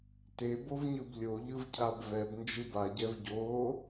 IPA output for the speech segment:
t e b o v ɲ ɯ b lʲ o ʎ ɯ v cʰ a b v ɛ b n d͡ʒ ɯ b a ɟ ɛ v ɟ o

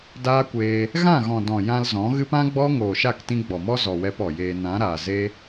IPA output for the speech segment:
d aː˦ kʷ eː˧ | ɣ ã˦˨ ɣ ɔ̃˨ d ɔ̃˨ j ã˧ l z ɔ̃˨˦ ɣ ɨ˦ p ã˦ ɡ͡b ɔ˦ ŋ oː˨ ʃ a˦˨ k t ĩ˧ ɡ͡b ɔ˨ m ɔ˦ z ɔ˨ w ɛ˧ p ɔ˨ j eː˧ n ã˨˦ ɾ aː˨ z e˦

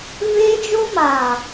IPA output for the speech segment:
v eː˦ d͡ʒ o˦ m aː˨

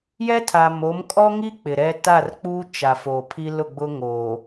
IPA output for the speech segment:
j ɛ˦ tʰ a˨ m o˨˦ m kʼ ɔ˦ ŋ i˦ k͡p ɪ˨ ɾ ɛ˦ t a˦˨ r k͡p uː˦ t͡ʃ a˨ f o˨ pʰ i˦ l ʊ˦˨ ɡ͡b ʊ˦ ŋ oː˨

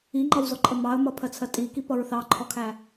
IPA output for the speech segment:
i ŋ͡ǃ ʌ w z ɔ ǃʼ ə m ɑ ə̯ m ʌ pʰ ɜ t͡sʰ ɜ tʼ i k i p ʌ ɹ θ ɑ ǃʰ ɔ kʰ æ

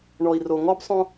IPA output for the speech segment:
ɳ ɔ˨ i̯ r o˨ ŋ ɔ˦ b sˤ õ˦

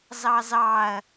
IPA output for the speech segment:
z ɑ z ɑ ɐ̯

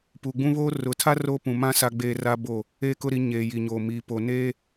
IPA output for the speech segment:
p uː˨ ɡ͡b ũ˦ β oː˦ r ʊ˨˦ tʰ a˦ r o˦ p ũ˨ m ã˦ s a˦ ɡ͡b eː˦ r a˦ b o˦˨ | eː˦ k ʊ˦ ɾ i˨˦ ɲ eː˨ j i˨ ɲ oː˨ m iː˨ p o˨ n eː˦

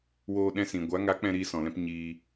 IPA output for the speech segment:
w oː˧ ɗ ɛ̃˧ s ĩ˨ ɡʷ a˨˦ ŋ a˨˦ k͡p ɛ̃˧ ɾ iː˧ s ɔ̃˨ l ɛ̃˧ p ɲ iː˧

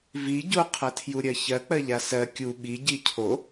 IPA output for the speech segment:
v i ɟ o qʰ ɐ tʰ j u ɾʲ ɜ ç ɜ k͡p ɜ ʎ a s ɜ kʲ u ɓ i ɟ i cʰ o

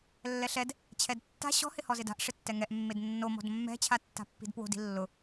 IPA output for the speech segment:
lː ɛ ɬ ɛ d | t͡ɕʰ ɛ d tː a̤ ɕ ɔ̤ h ɪ h ɔ z ɪ d a̤ ʔ ʂ ɪ tː ɛ ŋ ɛ ʔ mː e d nː o m ɔ̤ d mː ɛ̤ t͡ɕʰ a tː a̤ pː i̤ d p w o̤ d i̤ lː ʊ

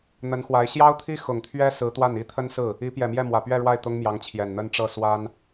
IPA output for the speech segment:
n̪ ə˧˥ n x w a˧˥ ɪ̯ ɕ j ɑ˥ ʊ̯ t̪ʰ i˥ x ʊ˨˩ ŋ t̪ʰ ɥ ɛ˥ s ɹ̩˧˥ t̪ w a˥˩ n i˥ t̪ʰ ə˥ n s ɹ̩˥˩ | i˧˥ p j ɛ˨˩ m j ɛ˥˩ m w ä˨˩ p ɥ ɛ˥˧ ɻ w a˥˩ ɪ̯ t̪ ʊ˥ ŋ m j ɑ˧˥ ŋ t͡ɕʰ j ɛ˨˩ n n̪ ə˥ n ʈ͡ʂ ɤ˥˩ s w a˥ n

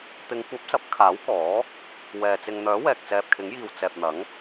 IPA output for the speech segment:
t̪ ɪ˨˧ ŋ kʷ ɐ˨˥ p̚ s ɐ˨˥ p̚ kʰ aː˨˥ w k ɔː˨˥ | w ɛː˨ t͡s ɪ˨ ŋ n̪ œː˨˥ w ɛː˨ k̚ t͡s ɛː˨ p̚ kʰ ɪ˨˥ ŋ j iː˨ w t͡s ɛː˨ p̚ n̪ ɐ˨˥ ŋ

